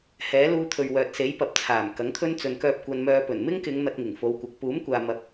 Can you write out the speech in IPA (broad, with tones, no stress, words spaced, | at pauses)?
hɛː˨˥ luː˧t̪ʰɵ˨ɥ wœː˨t̚se˨˥jpɐ˨˥p̚ t͡sʰaː˨˩mkɐ˨˥ŋt̪ʰɵ˥n t͡sɵ˨nkœː˧p̚ kʷɐ˧nmœː˧ pɵ˨˩n mɪ˥ŋkɪ˨˧ŋ n̪ɐ˧t̚ŋɪ˨˩ŋ fo˨˧wkʷɐ˨˥k̚ puː˨˥mkʷaː˨ mɐ˨p̚